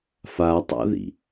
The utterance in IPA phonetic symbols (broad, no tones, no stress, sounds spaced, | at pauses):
f a tˤ a̰ ð ḭ